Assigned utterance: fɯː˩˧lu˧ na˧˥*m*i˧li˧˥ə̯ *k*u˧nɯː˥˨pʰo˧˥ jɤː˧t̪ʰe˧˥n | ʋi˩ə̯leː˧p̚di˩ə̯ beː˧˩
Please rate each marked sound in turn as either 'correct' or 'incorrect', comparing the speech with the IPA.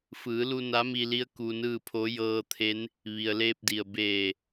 correct, correct

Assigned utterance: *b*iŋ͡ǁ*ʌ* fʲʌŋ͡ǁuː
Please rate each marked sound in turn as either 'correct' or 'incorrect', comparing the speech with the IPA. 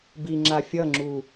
correct, incorrect: a

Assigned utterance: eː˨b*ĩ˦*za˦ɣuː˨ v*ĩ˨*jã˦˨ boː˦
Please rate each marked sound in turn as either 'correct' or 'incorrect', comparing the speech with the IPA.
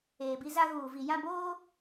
incorrect: i˦, incorrect: i˨

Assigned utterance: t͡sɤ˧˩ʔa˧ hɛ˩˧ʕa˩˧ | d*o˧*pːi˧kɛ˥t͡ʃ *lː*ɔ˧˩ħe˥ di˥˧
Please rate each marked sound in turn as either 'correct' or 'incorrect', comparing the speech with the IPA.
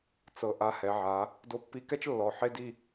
correct, correct

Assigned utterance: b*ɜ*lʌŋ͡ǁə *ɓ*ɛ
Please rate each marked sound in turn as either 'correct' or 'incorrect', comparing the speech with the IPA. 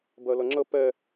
correct, incorrect: p

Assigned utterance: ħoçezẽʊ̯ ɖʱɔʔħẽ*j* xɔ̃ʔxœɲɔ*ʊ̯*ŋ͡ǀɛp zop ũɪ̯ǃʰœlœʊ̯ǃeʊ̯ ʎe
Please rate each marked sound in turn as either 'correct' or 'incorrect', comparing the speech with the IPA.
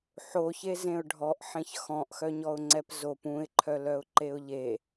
incorrect: ç, correct

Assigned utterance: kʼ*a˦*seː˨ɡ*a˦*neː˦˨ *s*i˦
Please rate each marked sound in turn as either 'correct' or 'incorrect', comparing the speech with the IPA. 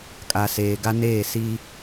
incorrect: a˨, correct, correct

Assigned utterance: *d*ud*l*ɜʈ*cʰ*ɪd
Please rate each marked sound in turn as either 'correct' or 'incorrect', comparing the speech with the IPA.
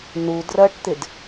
incorrect: n, incorrect: r, incorrect: t̪

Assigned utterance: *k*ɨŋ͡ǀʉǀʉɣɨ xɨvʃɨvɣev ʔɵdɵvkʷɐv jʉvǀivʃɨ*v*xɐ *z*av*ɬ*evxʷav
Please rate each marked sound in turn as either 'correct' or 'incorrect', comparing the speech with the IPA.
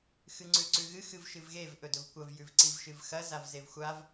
incorrect: x, correct, correct, incorrect: z

